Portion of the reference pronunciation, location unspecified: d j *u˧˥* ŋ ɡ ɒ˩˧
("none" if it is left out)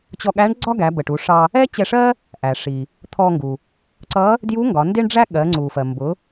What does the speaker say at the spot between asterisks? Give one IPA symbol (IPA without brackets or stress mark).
u˧˥